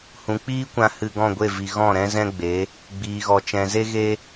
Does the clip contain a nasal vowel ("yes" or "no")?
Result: yes